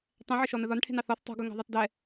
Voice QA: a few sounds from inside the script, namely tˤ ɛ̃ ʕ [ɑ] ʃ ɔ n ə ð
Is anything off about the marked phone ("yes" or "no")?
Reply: yes